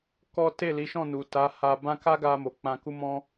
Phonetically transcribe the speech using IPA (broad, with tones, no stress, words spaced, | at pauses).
kɔ˦ te˦˨li˨˦ʃɔ̃˦˨nu˨ ta˨˦ha˧ bã˦ ka˦ɡa˧mo˨ k͡pã˧ku˦mɔ̃˦